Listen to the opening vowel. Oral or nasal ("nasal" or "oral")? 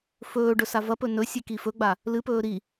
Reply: oral